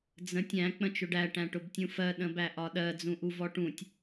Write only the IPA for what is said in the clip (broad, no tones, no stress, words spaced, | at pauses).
d͡zə̃tʲ æ̃ k͡pə̃t͡ʃʊɖæ ʈæ̃ʈʊbtʲũfɜ ɗə̃bæʔɒɗɜ d͡zũʔuvɔʈũtʲ